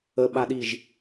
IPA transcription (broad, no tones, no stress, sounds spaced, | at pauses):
ə ɓ a ɗ i ʒ